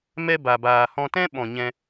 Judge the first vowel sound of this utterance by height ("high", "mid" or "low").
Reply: mid